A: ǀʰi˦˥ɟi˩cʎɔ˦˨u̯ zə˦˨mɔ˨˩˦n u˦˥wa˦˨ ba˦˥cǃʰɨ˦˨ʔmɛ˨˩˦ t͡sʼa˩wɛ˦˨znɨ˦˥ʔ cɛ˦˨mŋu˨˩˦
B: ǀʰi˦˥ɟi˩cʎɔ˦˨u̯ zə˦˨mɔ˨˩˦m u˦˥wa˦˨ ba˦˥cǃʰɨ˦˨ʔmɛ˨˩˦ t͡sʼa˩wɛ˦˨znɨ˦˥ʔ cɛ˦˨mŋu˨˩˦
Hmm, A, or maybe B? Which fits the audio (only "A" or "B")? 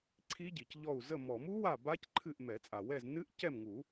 B